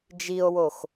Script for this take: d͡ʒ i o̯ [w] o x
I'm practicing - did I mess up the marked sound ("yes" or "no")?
no